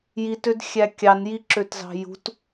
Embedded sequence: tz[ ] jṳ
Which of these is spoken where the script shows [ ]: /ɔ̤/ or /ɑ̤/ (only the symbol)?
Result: ɑ̤